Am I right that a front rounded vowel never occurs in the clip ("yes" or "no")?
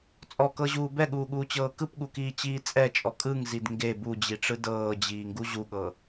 yes